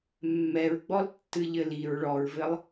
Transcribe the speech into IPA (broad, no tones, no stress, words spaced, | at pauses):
mːɛɹɡ͡bɔltːɨ ʎɘliɹ ɭɔɹvɘlˠ